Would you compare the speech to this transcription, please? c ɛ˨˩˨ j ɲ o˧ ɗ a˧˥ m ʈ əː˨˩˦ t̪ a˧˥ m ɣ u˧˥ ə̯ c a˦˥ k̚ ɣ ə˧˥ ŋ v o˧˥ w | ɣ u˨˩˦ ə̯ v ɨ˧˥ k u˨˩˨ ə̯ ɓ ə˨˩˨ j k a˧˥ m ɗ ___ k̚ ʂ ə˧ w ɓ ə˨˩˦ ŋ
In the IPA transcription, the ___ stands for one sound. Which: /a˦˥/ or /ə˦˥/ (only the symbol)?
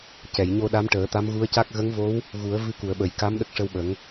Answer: ə˦˥